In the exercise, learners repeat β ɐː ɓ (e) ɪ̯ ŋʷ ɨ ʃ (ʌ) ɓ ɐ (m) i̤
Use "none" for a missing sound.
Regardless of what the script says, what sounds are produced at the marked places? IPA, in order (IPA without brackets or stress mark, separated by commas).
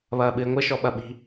ɨ, ɔ, ɓ